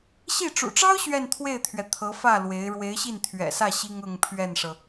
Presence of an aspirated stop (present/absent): present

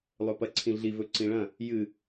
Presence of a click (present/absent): present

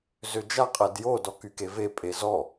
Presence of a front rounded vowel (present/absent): present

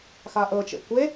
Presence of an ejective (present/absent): absent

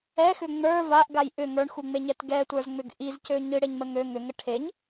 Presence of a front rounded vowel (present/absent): present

